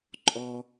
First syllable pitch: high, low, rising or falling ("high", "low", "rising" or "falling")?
high